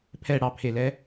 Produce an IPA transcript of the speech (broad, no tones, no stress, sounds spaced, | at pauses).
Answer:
pʰ ɛ ɽ ɑ pʰ e l ɛ